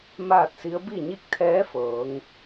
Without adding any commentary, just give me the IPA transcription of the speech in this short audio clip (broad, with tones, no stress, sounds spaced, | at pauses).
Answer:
m aː˥˨ t̚ s i˧˥ ə̯ b i˥˨ ɲ i˥˨ k̚ t̪ʰ ɛː˧˥ f ɤː˩˧ ŋ